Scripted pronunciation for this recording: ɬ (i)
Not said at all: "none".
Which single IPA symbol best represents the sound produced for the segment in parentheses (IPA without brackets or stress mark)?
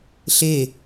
e